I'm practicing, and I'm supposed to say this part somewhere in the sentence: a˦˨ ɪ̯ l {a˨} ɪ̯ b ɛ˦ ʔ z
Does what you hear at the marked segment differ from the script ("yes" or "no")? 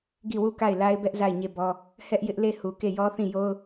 yes